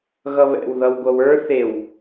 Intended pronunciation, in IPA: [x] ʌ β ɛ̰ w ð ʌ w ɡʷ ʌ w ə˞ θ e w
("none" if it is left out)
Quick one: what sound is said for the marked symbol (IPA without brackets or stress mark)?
ɣ